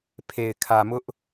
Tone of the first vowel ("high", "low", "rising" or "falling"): low